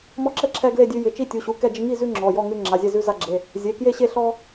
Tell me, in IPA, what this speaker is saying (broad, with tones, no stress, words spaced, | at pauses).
mɔ˦ǁɛ˥˨ ǁʰɛ˦ɡle˥˨dʲʉ˦ jɪ˩˧˩t͡ʃi˥˨ tʲu˩˧˩ɕu˩˧˩ kɛ˥˨d͡ʒɪ˦ ŋi˥˨zʉ˦ ŋ͡ǁɔ˩˧˩jɔ˥˨ ŋʉ˦ ŋ͡ǁa˩˧˩zʲɛ˥˨zʉ˦ za˦ɡ͡ǁe˩˧˩ | zʲe˩˧˩kje˥˨ɕe˥˨ ɬɔ˦